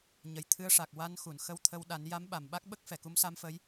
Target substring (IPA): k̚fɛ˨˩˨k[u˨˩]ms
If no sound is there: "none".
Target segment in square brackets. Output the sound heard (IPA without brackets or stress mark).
u˧˥